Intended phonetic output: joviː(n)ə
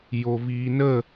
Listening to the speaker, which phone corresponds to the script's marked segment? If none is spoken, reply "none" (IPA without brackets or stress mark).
n